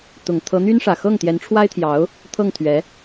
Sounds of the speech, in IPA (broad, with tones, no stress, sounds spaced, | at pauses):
t̪ ʊ˨˩ ŋ t̪ʰ ɤ˧˥ n̪ y˥ n ʂ ä˨˩ x ɤ˥˩ ŋ t̪ j ɛ˧˥ n ʈ͡ʂʰ w a˥ ɪ̯ t̪ʰ j ɑ˧˥ ʊ̯ | t̪ʰ ɤ˥˩ ŋ t̪ʰ ɥ ɛ˧˥